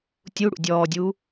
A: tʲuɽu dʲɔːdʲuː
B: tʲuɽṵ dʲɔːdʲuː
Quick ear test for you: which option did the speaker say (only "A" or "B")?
B